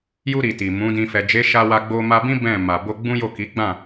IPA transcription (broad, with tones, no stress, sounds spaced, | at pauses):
j u˧ ɾ i˨ t i˨ m ũ˨˦ d ĩ˧ f ɛ˨ d͡ʒ e˨˦ ʃ a˧ w a˧ ɡ͡b o˧ m a˧ b ĩ˦ b ɛ̃˦˨ m a˨ b o˧ ɡ͡b ũ˦ j o˦˨ k i˨˦ ɡ͡b ã˦˨